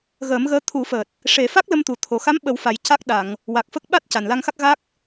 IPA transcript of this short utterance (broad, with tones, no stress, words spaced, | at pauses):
ɣəː˨˩˦mɣəː˧˥ t̪ʰu˨˩˦fəː˨˩t̚ | ʂe˨˩˦fa˦˥k̚lə˧mt̪u˨˩ t̪ʰo˧ xa˧˥mɓə˨˩˦wfa˨˩j ca˦˥k̚ɗa˨˩˨ŋ | wa˨˩k̚fə˦˥k̚ ɓa˦˥t̚ ca˨˩nla˧ŋxa˦˥k̚ ɣa˦˥k̚